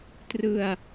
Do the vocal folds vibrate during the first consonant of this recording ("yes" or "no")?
no